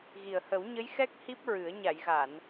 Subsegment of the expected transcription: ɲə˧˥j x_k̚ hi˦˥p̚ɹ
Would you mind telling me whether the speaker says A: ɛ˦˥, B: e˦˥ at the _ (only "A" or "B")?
A